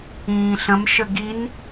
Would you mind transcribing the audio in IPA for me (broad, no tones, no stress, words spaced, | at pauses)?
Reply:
ĩːɬə̃m ʃəɡin